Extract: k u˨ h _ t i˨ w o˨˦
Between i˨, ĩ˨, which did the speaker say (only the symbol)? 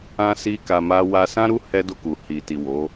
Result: i˨